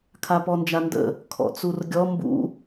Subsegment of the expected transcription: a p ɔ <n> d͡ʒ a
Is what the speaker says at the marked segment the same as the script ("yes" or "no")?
yes